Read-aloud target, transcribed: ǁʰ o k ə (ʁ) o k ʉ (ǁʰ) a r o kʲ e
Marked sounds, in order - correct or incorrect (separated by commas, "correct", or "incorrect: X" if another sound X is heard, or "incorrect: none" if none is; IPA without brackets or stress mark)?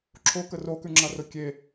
incorrect: r, incorrect: ŋ͡ǁ